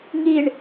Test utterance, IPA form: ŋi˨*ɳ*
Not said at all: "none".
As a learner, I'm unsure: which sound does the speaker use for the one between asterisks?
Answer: ɳ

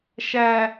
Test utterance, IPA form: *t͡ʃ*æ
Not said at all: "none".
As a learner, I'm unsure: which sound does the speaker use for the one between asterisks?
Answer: ʃ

